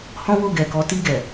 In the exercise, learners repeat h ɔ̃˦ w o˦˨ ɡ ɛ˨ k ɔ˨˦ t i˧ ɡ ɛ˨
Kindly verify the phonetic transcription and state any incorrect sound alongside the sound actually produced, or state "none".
none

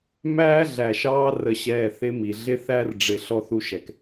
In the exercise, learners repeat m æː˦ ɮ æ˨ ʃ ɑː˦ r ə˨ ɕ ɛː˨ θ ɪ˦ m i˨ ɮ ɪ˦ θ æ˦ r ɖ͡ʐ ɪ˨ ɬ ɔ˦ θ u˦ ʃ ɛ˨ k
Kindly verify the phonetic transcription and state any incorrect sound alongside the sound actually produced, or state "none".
none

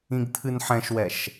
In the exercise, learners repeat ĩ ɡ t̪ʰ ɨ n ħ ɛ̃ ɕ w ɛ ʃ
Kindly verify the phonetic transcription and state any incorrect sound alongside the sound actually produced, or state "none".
ɕ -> ʃ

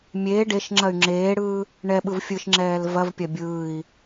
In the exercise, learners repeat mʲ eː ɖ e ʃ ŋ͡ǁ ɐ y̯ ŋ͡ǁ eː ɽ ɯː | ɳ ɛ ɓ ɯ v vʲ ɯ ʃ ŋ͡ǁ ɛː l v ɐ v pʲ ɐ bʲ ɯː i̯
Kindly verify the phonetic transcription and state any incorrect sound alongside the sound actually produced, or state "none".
vʲ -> fʲ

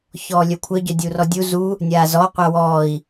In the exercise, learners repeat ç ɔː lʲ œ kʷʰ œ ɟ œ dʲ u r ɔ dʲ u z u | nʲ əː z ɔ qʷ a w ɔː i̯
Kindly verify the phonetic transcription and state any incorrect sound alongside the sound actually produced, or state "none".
əː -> aː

